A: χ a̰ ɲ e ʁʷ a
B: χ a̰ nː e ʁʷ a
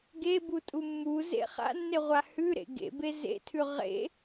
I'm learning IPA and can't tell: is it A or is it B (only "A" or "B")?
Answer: B